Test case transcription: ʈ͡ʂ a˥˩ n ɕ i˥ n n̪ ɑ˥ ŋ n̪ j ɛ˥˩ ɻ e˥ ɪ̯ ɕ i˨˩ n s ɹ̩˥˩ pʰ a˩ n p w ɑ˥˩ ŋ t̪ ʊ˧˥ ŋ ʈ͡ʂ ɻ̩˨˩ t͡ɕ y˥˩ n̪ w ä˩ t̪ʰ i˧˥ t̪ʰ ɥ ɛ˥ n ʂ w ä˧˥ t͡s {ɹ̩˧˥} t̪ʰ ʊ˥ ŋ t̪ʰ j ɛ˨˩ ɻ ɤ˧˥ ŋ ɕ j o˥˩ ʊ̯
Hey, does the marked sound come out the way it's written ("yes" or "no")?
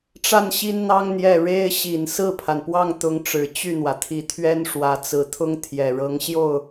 no